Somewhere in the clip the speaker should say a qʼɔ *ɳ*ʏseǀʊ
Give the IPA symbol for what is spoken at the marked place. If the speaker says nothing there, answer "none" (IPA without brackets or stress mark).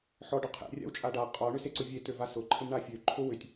ɳ